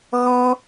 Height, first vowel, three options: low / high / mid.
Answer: mid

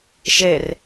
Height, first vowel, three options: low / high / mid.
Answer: mid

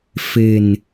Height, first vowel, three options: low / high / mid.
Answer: mid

